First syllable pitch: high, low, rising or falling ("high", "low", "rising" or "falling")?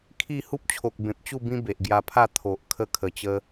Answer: falling